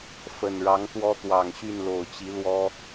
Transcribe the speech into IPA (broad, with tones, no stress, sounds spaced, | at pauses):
f ə˨˩ n ɻ ɑ˨˦ ŋ t̪ w ɔ˦ t̪ w ɑ˨˩ ŋ ɕ y˥˨ n l o˨˩ ʊ̯ t͡ɕ i˨˦ l w ɔ˦